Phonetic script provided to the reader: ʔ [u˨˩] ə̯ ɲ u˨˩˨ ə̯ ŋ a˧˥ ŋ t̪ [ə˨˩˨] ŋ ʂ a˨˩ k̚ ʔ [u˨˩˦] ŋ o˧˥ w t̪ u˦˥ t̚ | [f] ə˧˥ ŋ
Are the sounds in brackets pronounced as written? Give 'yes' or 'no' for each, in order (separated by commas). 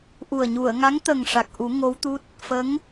yes, no, yes, yes